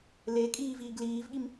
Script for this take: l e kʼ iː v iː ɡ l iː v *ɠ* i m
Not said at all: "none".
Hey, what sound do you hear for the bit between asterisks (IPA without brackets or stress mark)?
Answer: ɠ